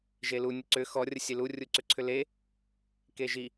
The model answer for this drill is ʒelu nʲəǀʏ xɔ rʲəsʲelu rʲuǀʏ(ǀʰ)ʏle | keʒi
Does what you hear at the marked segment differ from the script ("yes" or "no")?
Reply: no